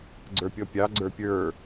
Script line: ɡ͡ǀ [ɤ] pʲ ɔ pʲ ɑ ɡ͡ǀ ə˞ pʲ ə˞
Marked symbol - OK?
no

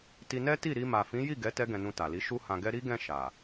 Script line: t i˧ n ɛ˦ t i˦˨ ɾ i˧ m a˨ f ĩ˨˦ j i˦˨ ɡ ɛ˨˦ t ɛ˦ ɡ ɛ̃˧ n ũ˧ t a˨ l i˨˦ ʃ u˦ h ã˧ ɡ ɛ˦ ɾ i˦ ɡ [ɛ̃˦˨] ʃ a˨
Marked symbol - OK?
yes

